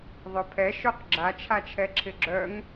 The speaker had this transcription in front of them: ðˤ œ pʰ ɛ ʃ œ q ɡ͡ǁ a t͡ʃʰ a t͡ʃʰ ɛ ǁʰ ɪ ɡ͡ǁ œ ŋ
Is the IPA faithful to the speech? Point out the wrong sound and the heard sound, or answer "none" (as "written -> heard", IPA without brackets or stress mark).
none